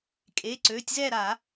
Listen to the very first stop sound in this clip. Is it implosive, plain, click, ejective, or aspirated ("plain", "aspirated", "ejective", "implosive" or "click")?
ejective